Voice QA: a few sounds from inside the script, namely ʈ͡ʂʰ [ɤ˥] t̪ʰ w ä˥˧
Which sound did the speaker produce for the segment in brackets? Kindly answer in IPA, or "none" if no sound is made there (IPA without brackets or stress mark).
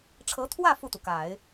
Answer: ɤ˧˥